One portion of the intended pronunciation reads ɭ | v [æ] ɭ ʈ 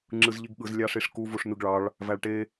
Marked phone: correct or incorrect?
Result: correct